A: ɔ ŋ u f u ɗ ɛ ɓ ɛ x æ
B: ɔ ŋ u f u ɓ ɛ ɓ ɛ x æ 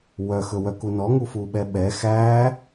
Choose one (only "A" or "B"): B